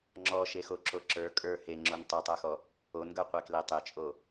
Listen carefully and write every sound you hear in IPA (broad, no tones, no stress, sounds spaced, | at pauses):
ŋ͡ǁ ɔ ʃ e x o ǁ o ǁ ə˞ kʼ ə˞ h e ŋ͡ǁ o n tˤ o tˤ ə˞ x ɔ | o n ɡ ə˞ qʷ e k l e tˤ e t͡ʃʼ o